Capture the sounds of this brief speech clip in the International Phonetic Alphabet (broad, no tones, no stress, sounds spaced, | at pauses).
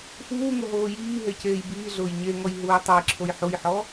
f uː ŋ ʊ ɦ oː j iː ɦ e c eː j b iː ɮ ʊː j ɲ e ŋ ɔ j ɦ uː j tˤ e j ǁʰ o j ħ u j ħ ɔ